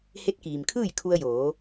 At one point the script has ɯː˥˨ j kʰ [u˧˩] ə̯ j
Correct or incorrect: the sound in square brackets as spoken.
incorrect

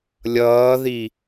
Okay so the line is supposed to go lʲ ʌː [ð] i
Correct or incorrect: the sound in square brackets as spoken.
correct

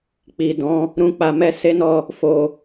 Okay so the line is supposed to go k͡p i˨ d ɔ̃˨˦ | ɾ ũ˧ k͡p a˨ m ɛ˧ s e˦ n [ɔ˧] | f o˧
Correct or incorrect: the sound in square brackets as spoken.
correct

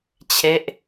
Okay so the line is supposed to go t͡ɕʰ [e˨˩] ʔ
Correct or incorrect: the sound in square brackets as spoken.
incorrect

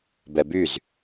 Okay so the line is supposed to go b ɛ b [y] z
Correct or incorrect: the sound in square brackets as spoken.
correct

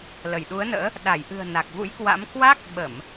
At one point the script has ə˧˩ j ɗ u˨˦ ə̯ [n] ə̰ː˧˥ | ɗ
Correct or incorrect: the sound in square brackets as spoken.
correct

